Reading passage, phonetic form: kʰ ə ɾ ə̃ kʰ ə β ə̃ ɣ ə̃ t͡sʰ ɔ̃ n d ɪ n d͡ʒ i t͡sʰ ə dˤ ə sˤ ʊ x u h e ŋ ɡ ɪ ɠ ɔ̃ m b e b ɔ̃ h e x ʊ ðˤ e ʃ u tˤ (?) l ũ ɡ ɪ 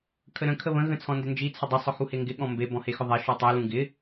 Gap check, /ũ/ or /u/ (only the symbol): u